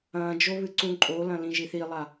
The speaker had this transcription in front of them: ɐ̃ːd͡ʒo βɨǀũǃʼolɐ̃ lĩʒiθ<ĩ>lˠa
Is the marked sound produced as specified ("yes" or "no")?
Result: no